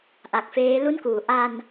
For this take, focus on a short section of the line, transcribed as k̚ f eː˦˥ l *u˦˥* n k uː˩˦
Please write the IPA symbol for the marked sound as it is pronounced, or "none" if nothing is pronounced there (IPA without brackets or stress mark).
u˥˩